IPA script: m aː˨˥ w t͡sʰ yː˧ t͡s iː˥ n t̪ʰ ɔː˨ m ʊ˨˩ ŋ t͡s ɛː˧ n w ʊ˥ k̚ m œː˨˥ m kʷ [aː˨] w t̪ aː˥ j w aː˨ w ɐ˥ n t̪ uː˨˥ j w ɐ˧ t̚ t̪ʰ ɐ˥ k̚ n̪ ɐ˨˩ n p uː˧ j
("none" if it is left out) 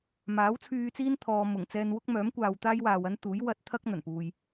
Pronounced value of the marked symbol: aː˨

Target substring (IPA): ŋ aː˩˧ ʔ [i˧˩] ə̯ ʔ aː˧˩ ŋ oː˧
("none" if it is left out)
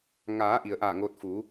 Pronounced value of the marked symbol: i˩˧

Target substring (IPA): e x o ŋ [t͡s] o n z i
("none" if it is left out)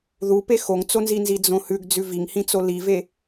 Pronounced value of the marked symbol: t͡s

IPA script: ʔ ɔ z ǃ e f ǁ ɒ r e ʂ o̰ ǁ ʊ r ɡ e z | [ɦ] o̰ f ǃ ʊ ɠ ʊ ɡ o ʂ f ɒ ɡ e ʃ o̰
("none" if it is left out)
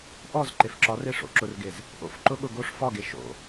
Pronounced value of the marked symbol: ʔ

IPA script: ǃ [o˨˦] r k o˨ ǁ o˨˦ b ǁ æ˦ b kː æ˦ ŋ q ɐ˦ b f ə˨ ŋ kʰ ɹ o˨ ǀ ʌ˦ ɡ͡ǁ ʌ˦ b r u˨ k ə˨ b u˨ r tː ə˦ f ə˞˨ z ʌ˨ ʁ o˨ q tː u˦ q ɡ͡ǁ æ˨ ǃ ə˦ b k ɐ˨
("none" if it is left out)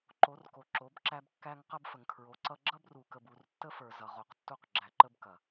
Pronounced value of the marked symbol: o˨˦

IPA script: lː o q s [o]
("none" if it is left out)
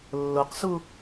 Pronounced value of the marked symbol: u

